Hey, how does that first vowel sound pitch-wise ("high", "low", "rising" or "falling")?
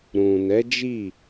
low